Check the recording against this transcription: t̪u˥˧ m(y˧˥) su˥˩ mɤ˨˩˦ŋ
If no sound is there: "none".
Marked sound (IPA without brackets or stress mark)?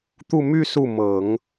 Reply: y˥˧